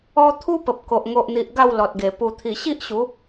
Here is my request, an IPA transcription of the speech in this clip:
ɔ˧ t̪ʰ u˦ p ə˨ p̚ k o˨ ʔ ŋ o˨ ʔ n̪ i˨ ʔ ɡ a˥˧ w l ɔ˨ t̚ ɡ e˨˩ p u˨˩ t̪ʰ i˨˩ ɕ i˦ ʔ ɕ u˨˦

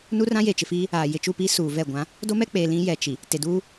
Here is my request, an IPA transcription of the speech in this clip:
n u˦ r ã˦ j e˨ t͡ʃ ɪ˨ f iː˦ | aː˨ j ɪ˨ t͡ʃ u˦˨ p i˦ s uː˨ v ɛ˦˨ ɡʷ ã˨˦ | d o˦ m ɛ˦ k͡p eː˨ l ĩ˦ j ɛ˨ t͡ʃ i˨ | t e˨ d uː˦

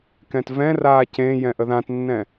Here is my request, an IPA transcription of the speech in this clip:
k ɛ̃ t v ɛ̃ r aː c ẽ j ɛ̃ ʔ ə ð ã t nː ɛ̃

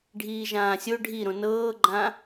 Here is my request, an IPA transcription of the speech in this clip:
ɖʱ iː ʒ ãː sʲ o ɖʱ i ɾ õ n ɤː ɡ͡ǃ ã

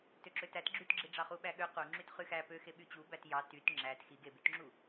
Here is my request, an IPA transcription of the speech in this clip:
t ø ǁ ø t æ t ɡ͡ǁ y t ɡ͡ǁ i ɖ͡ʐ ɑ χ u ɓ æ ɠ ø q u ŋ͡ǁ y t χ y x æ p ø x e ɓ y t͡ɕ u b æ t j ɑ t y t ŋ͡ǁ æ t x i ɡ e b y t ŋ͡ǁ u

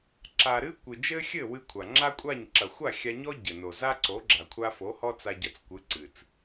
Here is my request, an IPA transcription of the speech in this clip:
ǁ a˨ ɾ ɨ˦ kʷ ɨ˨ d͡ʒ ɘ˦ xʲ ɘ˦˨ w ɨ˦ kʷʰ a˨ ŋ͡ǁ a˦ kʷʼ a˦˨ ɲ ǁ ɐ˨ xʷ a˦˨ xʲ a˧ ɲ ɔ˦ ɟ ɘ˨ n o˨ z a˦ ǀ o˨˦ ɡ͡ǁ a˨ kʷʰ a˧ f o˨˦ h ɔ˦ t͡s a˧ ɟ ɐ˧ t͡s kʷ ɨ˨˦ ǀ ɨ˨ t͡s

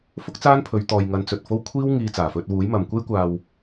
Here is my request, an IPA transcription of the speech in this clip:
f ʊ˥ k̚ t͡s aː˥ n pʰ ɵ˨˧ ɥ t̪ ɔː˨ j ŋ ɐ˨˥ n t͡s ɵ˨ t̚ f o˥ w kʷʰ iː˥ w ŋ iː˧ t͡s aː˨˩ f ɵ˧ t̚ w uː˨˥ j m ɐ˨ m kʷ e˥ j kʷ aː˧ w

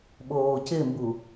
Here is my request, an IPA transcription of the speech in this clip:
ɓ oː c ɪ m b u

